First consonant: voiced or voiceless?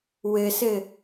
voiced